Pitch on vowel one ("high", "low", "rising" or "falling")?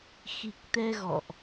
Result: low